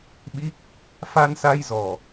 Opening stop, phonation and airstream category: implosive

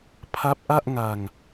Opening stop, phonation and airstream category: aspirated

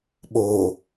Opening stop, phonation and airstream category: implosive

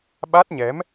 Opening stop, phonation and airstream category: implosive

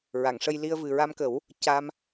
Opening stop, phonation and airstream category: plain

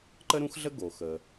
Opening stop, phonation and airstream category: click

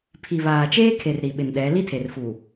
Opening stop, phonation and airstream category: aspirated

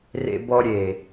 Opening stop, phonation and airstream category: plain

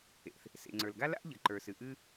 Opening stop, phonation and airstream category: click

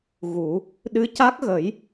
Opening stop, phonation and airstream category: implosive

